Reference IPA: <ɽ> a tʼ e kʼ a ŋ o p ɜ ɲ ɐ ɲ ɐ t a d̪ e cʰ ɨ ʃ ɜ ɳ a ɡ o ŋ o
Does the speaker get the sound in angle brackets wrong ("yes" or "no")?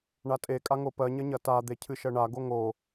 yes